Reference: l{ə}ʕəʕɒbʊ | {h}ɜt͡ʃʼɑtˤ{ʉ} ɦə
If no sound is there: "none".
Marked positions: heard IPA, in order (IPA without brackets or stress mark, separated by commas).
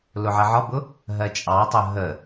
ʊ, ɦ, ʊ